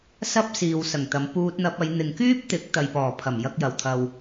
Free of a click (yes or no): yes